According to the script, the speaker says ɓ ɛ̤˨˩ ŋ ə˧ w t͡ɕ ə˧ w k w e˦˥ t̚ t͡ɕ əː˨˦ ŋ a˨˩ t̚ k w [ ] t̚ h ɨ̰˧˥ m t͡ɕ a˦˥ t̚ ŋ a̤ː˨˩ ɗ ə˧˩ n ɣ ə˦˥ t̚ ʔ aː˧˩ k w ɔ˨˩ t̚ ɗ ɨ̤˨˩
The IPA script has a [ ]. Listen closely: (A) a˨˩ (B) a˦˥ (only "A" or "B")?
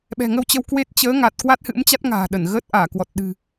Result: B